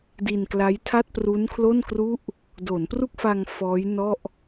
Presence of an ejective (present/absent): absent